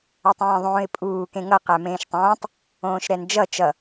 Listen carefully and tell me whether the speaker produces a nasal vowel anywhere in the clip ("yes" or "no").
yes